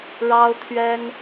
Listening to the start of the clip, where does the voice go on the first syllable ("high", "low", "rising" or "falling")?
high